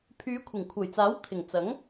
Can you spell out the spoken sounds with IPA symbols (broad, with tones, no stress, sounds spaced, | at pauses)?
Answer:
pʰ yː˨˧ kʷʰ ɪ˨˩ ŋ kʷʰ ɐ˨˩ j t͡s aː˨˥ w t̪ʰ ɪ˨˩ ŋ t͡s ɐ˨˥ ŋ